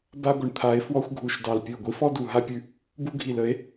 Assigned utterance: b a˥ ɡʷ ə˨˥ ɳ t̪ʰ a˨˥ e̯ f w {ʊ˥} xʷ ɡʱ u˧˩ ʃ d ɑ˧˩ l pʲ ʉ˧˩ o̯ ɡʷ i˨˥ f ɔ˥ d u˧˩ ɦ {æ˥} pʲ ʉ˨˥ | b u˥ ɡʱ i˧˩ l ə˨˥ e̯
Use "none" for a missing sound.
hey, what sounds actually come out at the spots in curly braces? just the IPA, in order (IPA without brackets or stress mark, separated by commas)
ɔ˥, a˥